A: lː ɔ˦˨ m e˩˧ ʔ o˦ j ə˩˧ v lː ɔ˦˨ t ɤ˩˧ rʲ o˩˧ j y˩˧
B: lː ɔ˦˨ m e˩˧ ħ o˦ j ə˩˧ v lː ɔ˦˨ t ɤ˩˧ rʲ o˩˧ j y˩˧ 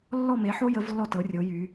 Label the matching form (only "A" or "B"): B